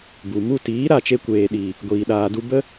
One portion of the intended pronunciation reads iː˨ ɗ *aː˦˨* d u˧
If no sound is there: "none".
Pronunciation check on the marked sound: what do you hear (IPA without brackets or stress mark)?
aː˨